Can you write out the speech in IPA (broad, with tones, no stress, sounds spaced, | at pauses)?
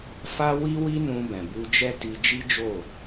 f a˦ w i˦ w i˦ n ũ˧ b ɛ̃˨ b u˧ d͡ʒ ɛ˦ t i˧ d͡ʒ i˦ d͡ʒ o˦˨